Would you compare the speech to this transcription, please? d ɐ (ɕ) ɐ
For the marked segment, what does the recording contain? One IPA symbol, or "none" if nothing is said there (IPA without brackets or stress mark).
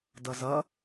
z